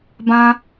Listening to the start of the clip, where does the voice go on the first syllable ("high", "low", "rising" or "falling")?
high